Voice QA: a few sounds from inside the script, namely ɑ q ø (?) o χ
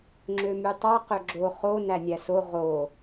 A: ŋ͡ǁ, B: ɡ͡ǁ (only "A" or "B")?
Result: B